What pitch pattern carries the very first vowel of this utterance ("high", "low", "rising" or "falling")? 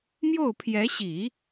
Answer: falling